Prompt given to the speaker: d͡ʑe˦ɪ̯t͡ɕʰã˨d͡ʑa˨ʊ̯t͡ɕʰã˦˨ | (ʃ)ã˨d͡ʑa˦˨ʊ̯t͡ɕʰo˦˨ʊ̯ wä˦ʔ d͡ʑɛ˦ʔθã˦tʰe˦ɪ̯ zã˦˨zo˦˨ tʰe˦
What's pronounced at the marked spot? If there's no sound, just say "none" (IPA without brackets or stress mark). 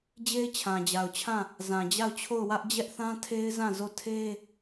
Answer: z